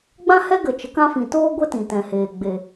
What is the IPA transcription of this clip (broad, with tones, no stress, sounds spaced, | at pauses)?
ɡ͡b ã˦ h ɛ˦ ɡ ə˨ t͡ʃ ə˨˦ k ã˦ f ĩ˨ t oː˦ ɡʷ ɛ˦ t ĩ˨ t ɛ̃˨ h eː˨ ɡ͡b e˨